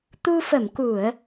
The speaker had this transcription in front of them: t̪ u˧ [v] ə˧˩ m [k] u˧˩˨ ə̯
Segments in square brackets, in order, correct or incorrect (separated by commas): incorrect, correct